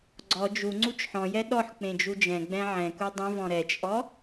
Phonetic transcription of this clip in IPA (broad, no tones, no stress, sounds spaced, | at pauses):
ɡ͡ǀ ɔ d͡ʒ u ŋ͡ǀ u t͡ʃ ħ ɔ̃ j ɛ ɗ ɔ ħ k͡p ẽ d͡ʒ u d͡ʒ ɛ̃ ɡ͡b ɛ̃ ʕ ɛ̃ k u dˤ ũ v ɔ̃ ɾ ɛ t͡ʃʼ ɔ